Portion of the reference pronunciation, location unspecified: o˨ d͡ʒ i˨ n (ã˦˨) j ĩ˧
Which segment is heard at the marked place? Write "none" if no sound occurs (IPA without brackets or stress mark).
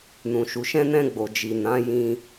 ã˨˦